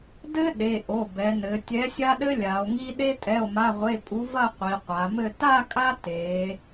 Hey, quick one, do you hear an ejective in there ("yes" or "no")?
yes